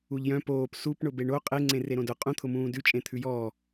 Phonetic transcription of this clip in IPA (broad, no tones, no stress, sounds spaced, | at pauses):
u ʎ j œ̃ p oː p s u p ɳ ʊ b e ɳ o qʼ e ŋ͡ǀ ẽ r e ɾ õ d ʊ qʼ ũ t̪ʰ ʊ m ũː d ʉ t͡ʃʼ ẽ t̪ʰ ʉ j ɔː